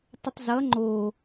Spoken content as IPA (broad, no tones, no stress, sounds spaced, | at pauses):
tˤ ə tˤ z ʌ ŋ͡ǃ o